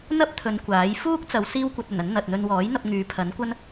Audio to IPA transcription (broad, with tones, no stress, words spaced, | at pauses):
n̪ɐ˥p̚t̪ʰɵ˨˧n kʷaː˨˥j fuː˥k̚t͡sɐ˨˧w siː˥wkʷɐ˧t̚ɵ˨˩nɐ˨˥n n̪ɐ˨t̚n̪ɵ˧n wɔː˨˥jn̪ɐ˧p̚ ŋyː˨˧pʰɐ˨˥nkʷɐ˥n